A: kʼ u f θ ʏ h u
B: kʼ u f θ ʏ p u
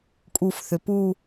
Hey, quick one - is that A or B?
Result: B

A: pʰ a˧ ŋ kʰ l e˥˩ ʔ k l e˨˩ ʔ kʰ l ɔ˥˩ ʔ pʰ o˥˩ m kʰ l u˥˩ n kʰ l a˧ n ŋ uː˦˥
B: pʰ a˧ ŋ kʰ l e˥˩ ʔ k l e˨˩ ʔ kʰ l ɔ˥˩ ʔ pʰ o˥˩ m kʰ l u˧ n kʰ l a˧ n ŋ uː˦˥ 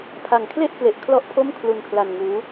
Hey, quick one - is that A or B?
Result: B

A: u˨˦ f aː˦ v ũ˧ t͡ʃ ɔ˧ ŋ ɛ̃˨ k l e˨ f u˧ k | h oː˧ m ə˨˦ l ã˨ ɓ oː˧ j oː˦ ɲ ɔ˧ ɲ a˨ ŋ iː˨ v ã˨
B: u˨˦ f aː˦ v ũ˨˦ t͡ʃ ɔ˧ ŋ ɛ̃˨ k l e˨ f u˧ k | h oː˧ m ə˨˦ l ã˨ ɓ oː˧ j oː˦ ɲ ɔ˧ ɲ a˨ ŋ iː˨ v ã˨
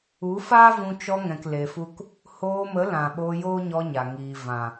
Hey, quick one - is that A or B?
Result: A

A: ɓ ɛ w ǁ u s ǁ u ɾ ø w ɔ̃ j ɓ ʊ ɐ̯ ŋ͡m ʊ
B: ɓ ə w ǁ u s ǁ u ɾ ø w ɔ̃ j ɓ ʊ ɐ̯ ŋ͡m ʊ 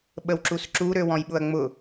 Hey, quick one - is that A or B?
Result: B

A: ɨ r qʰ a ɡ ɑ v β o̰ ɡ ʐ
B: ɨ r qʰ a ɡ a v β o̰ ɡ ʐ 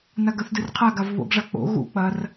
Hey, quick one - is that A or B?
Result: B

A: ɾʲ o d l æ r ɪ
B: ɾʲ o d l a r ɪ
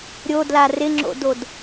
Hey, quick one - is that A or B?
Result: B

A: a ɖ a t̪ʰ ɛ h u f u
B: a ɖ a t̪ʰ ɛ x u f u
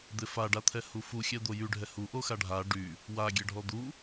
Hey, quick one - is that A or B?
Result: A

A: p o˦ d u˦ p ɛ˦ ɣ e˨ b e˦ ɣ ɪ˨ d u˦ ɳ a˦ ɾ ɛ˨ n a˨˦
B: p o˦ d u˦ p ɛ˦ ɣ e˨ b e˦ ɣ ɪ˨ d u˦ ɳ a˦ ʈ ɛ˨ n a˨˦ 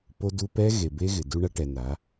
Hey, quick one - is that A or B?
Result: B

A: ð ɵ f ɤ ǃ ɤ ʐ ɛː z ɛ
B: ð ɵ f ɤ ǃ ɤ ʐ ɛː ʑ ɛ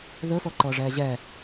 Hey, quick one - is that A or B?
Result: B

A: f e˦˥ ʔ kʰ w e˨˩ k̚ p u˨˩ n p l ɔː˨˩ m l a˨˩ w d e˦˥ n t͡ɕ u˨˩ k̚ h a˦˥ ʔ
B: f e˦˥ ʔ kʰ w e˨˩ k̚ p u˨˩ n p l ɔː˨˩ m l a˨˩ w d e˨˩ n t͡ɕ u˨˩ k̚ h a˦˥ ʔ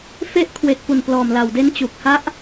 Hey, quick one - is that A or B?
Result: A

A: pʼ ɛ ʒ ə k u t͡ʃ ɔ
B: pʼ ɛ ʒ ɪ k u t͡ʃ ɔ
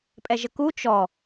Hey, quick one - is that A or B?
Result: A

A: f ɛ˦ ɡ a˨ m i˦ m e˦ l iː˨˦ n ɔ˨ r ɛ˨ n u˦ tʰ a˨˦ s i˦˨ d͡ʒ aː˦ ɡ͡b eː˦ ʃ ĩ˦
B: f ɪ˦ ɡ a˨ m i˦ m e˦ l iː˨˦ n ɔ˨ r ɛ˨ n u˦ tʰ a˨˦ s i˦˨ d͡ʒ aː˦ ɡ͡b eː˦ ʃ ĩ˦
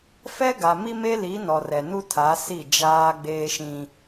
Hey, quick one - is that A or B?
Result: A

